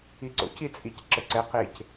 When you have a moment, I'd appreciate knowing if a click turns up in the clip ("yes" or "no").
yes